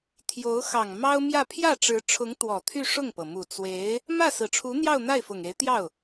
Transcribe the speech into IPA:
t̪ʰ j o˧˥ ʊ̯ x ɑ˨˩ ŋ m ɑ˥ ʊ̯ m j ä˥˧ pʰ j ä˥˩ ʈ͡ʂ ɻ̩˧˥ ʈ͡ʂʰ ʊ˧˥ ŋ t̪ w ɔ˨˩ t̪ʰ y˥˧ ʂ ʊ˥˩ ŋ p ɤ˩ m u˨˩ t͡s w e˧˥ ɪ̯ | m ä˥˩ s ɹ̩˨˩ ʈ͡ʂʰ u˧˥ n̪ j ɑ˥˧ ʊ̯ n̪ a˥˩ ɪ̯ f ʊ˨˩ ŋ e˧˥ ɪ̯ t̪ j ɑ˥˩ ʊ̯

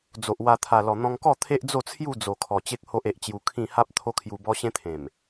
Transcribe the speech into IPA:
d͡z o˨ ʔ w a˧ t̪ʰ a˨˩ l ɔ˨˩ n̪ ɔ̃˧ ŋ k ɔ˥˧ t̪ʰ e˦ ʔ d͡z o˥˧ t͡sʰ j u˥˧ d͡z o˨˩ kʰ ɔ˨˩ t͡ɕ e˦ k̚ h o˦ ʔ e˨ ʔ t͡ɕ j u˧ kʰ ĩ˥˧ h a˦ p̚ t̪ʰ o˦ kʰ j u˧ b ɔ˦ ɕ ẽ˦ t̪ʰ ẽ˨˩ m

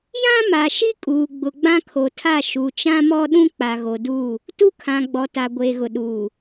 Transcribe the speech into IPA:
j ã˦ m a˨ ʃ i˦ kʼ uː˨ ɡ͡b ʊ˨ ɡ͡b ã˦ kʰ o˨ tʰ a˦˨ ʃ u˨ t͡ʃ ã˦ m ɔ˦ ɗ ũ˦ k͡p a˨ ɣ o˨ d uː˦˨ | t u˦ kʰ ã˨ ɡ͡b ɔ˨ t a˨ ɡʷ eː˨ ɣ ʊ˨ ɗ uː˨

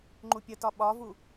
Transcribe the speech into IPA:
ŋ͡ǃ u pʲ ə t ɒ ɓ ɒ v u

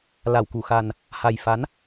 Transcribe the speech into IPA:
l a˧˩ w k u˧˩ x a˨˩ n | h a˨˩ j f a˨˦ n

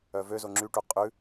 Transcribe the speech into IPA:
œ v ø z o ŋ͡ǁ y ʈ u qʼ ʉ

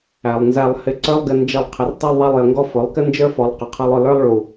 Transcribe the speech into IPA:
æ˨ lˠ n z æ˧ lˠ h ɪ˧ ǀ ə˞˦ lˠ ɡ ɪ˧ n d͡ʒ ʌ˧ lˠ qʰ ɪ˨ r tˤ ʊ˧ lˠ ðˤ æ˧ lˠ j ə˨ ŋ ɡ ɔ˧ f ʊ˨˦ lˠ k ɪ˦ n d͡ʒ ə˞˦ f ɔ˨˦ lˠ q ʊ˨ qʰ ʌ˧ lˠ ʊ˧ l ə˞˦ lˠ ɭ u˨

